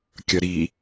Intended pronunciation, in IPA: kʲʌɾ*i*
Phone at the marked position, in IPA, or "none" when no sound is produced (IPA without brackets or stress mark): i